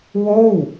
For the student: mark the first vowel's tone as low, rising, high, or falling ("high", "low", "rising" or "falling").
falling